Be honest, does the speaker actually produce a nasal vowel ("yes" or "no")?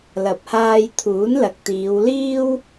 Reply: no